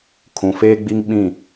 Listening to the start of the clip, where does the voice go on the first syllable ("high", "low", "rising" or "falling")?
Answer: low